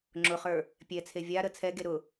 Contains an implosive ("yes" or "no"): no